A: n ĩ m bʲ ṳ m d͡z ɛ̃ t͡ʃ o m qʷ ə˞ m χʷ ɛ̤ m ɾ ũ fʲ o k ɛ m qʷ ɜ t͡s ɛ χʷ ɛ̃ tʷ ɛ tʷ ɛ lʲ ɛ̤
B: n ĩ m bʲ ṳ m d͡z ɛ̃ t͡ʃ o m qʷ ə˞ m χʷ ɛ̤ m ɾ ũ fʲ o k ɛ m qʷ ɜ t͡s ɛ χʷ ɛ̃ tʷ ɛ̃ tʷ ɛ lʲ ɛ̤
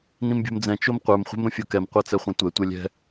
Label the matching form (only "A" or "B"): A